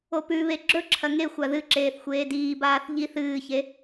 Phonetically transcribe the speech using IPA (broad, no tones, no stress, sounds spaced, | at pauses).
o p ʉ β e ɡ͡ǁ ɵ ǁʰ ɐ ŋ e xʷ a ð ɨ ǁ eː θ xʷ eː d iː b aː θ ʎ i θ ɨː ç e